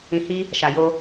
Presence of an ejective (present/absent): absent